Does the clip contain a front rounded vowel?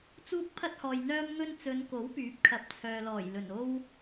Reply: yes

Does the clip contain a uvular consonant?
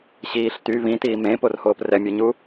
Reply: no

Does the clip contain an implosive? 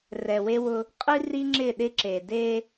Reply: yes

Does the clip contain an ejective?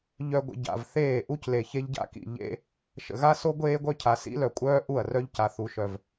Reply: yes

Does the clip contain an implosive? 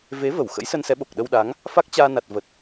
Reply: yes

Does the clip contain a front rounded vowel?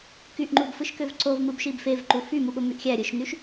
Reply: yes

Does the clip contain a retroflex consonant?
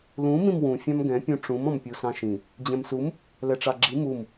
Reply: yes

